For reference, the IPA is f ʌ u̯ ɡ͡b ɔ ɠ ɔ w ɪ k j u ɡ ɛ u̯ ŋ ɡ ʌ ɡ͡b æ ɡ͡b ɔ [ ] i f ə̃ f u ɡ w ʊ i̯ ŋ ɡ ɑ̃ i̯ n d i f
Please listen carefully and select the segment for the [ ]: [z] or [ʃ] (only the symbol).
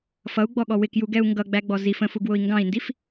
z